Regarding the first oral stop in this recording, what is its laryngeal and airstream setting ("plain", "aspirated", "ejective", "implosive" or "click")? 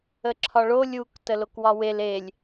click